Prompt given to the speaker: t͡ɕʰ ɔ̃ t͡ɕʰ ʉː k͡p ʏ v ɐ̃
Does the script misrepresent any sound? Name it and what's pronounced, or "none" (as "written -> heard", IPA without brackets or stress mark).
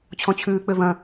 none